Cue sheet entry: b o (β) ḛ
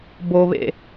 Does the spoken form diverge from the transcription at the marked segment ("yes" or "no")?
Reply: no